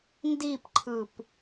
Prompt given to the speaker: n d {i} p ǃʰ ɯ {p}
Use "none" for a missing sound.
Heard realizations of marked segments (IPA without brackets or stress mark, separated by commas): i, p